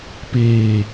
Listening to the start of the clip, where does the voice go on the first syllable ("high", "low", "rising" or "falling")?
low